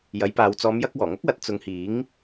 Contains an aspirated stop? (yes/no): no